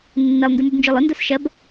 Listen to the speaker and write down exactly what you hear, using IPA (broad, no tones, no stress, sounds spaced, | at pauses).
nː e lˠ n d u m ʉ b n d͡ʒ o lˠ ɵ n d o s ʃ ɐ b